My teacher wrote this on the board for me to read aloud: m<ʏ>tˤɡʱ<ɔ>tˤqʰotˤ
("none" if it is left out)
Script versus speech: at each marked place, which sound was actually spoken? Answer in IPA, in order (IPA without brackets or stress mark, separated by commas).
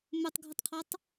ʏ, ə